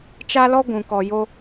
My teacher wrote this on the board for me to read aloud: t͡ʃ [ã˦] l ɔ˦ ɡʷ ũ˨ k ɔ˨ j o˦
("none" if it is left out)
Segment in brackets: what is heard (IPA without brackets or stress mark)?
a˦